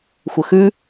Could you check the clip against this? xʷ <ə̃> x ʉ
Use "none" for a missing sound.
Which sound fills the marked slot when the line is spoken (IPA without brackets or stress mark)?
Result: ə